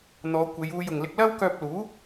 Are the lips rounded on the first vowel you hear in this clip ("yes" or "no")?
yes